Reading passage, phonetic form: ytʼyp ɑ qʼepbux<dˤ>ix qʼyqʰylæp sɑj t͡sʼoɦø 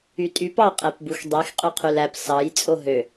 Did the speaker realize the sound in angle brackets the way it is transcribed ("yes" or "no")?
yes